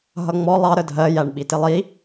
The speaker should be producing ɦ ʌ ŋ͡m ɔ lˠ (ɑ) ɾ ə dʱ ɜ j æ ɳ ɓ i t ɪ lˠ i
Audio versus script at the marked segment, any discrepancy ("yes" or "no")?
no